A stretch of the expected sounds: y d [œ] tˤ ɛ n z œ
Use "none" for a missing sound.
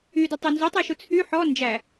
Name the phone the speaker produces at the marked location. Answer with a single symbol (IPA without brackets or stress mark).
œ